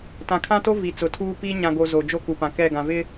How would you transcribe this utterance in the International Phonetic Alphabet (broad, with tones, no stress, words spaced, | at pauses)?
tã˨kʰã˦to˦ vi˨t͡sʊ˨tʰuː˦piː˦ ɲã˨ɡo˨ zo˨d͡ʒo˦ku˨ pã˨kɛ˦˨ ɡã˨vɪ˦